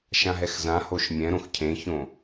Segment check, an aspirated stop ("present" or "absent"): present